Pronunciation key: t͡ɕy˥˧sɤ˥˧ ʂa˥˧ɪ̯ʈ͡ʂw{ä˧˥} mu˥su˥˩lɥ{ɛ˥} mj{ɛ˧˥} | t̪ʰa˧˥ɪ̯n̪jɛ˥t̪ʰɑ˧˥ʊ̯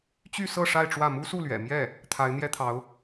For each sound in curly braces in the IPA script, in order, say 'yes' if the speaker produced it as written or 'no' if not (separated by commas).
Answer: no, no, no